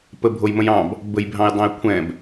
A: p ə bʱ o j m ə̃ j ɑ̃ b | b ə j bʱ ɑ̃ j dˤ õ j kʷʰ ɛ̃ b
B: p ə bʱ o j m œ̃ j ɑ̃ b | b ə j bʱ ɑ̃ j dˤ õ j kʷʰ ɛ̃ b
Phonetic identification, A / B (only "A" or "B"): A